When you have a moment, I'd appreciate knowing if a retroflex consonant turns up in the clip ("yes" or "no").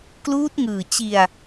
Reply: no